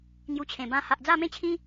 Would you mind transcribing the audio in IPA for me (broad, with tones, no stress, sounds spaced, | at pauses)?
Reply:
ŋ j u˧ t͡ɕʰ ẽ˨˩ b ã˥˧ h a˨ ʔ d͡z a˥˧ m ẽ˦ t͡ɕʰ ĩ˦